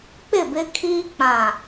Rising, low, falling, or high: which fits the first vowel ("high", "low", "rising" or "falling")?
falling